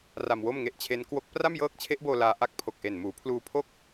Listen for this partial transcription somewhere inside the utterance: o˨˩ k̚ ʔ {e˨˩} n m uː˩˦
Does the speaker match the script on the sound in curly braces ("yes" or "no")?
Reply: yes